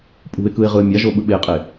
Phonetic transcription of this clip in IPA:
pʼ ṳ ɪ̯ k ɯ ɪ̯ ʁ ɯ ə̯ mʲ a ʒ o ɓ ɯ ɓ e qʼ e

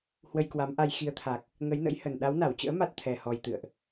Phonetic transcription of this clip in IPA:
h w ə˧ j k w a˨˦ m ʔ a˧ j x i˨˦ ə̯ t̪ʰ a˨˩ k̚ | ŋ ə˨˦ j n ə̰˧˥ j h ə˨˩ n ɗ a˨˦ w n a˧˩ w t͡ɕ ə̰ː˧˥ m a˦˥ t̚ t̪ʰ ɛ˨˩ h ɔ˨˩ j t̪ ɨ̰˧˨ ə̯ ʔ

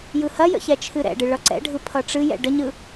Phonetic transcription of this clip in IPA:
j ɯ h ɐ j ə̰ ç ɛ t͡ʃʰ ɨ ɾ ɛ̰ ɖ ɨ ɭ ʌ ǀ ɛ̰ ɖʱ ɯ pʰ ʌ ʈ͡ʂ ɨ j ɛ̰ ɖ ə ɲ ɯ

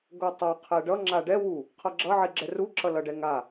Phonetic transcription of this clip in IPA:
ɡ o tˤ a qʰ ɛ ɖ ʌ ŋ͡ǁ a ɖ ɛ w u | qʰ ʌ ɡ͡ǁ ʌ ʕ i ɡ͡ǁ ɛ r u ǁ ʌ l ʌ ɖ ɛ ŋ a

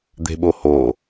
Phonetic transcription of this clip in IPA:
d̪ e̤ ɓ o h o

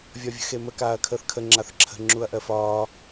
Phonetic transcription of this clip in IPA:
vʲ ɒ vʲ ə̤ x e m ə k aː ɐ̯ kʰ əː θ kʰ ə ŋ͡ǁ a θ ǁʰ ə̤ ŋ͡ǁ u ɐ̯ ʔ ɜ f ɒː

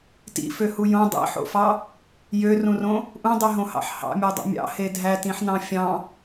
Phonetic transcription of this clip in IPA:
t ḭ f ø h u j õ dˤ ḭ ħ o̰ f ɑ | j ø r ũ r õ | ʔ ũ dˤ y ɦ õ h ɑ̰ ħ h ɑ̰ mʲ o dˤ o̰ mʲ ɑ̰ h e dʱ æ t ĩ ħ n ɑ̃ fʲ ɑ̃

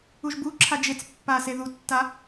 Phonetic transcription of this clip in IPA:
u ʒ b u ǁʰ a d͡ʒ e t͡s pː a s e ð u tː a

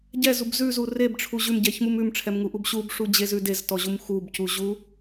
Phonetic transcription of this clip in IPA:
ɟ ɛ z u b z ʉ z u r e b ʈ͡ʂʰ u ʑ ʉ m ɟ ɛ ç m u m ʉ m ʈ͡ʂʰ ɛ m ŋ u ʔ u b ɕ u b ʂ u d͡ʑ e z ʉ d e z t ɔ ʑ u m x u b c u ʑ u

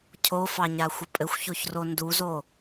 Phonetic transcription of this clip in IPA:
cʰ o f ɑ ɲ a xʷ ə pʼ ɘ xʷ ç o ç r o n d u z o

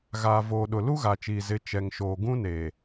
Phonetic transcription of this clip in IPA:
ɣ aː˨ v oː˨ ɗ ʊ˨ l u˦ ɣ a˨ t͡ʃ iː˨ z ɪ˨˦ t͡ʃ ɛ˨ ŋ ʃ oː˨ ɡ ũ˦ n eː˨

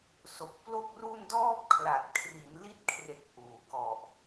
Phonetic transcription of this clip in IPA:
s o˨˩ k̚ p l o˥˩ k̚ r u˥˩ n d ɔː˥˩ p̚ kʰ l a˨˩ t̚ kʰ r i˩˦ n l i˦˥ t̚ kʰ r e˨˩ k̚ ʔ uː˩˦ k ɔ˨˩ ʔ

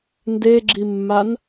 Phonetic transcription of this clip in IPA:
n d e ɡ͡ǁ i mː a n

